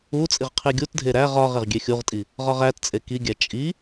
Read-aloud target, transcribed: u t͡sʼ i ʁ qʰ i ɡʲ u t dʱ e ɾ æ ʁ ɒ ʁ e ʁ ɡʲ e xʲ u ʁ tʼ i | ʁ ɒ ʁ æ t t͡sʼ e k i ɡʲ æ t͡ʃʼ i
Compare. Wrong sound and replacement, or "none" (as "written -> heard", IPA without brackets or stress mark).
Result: none